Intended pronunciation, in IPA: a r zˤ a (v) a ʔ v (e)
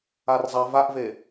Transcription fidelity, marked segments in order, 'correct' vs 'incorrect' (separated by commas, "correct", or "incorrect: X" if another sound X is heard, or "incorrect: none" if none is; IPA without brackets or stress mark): correct, correct